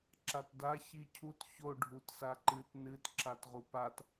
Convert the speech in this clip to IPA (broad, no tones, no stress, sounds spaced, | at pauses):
ǁ a t d a ç i cʰ u t ç o ɖʱ u t s a ǃ ɨ t n ɨ t ǁ a t ʁ u p a t